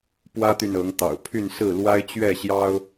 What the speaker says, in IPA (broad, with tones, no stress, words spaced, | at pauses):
pwä˦t̪y˨n ɤ˨˦ŋt̪ɑ̰˨˩ʊ̯ pʰy˥˨n sɹ̩˥˨ lwa˦ɪ̯t͡ɕɥɛ˥˨ɕjɑ˦ʊ̯